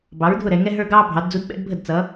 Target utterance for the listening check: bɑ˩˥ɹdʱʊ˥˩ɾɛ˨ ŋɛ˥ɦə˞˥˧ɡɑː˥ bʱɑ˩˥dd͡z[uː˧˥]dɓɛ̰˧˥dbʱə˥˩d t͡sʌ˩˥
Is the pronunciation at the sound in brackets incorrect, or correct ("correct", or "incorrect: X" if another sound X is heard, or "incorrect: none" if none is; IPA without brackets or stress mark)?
incorrect: u˧˥